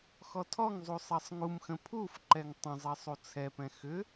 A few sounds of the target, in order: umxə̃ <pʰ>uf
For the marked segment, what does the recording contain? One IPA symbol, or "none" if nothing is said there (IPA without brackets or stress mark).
pʰ